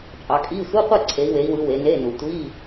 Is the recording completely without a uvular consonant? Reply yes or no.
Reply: no